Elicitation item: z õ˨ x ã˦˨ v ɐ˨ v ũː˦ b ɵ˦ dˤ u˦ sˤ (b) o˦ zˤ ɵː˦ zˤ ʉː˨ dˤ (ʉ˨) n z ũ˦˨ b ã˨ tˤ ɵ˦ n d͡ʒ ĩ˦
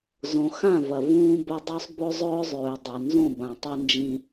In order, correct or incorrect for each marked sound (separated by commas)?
correct, correct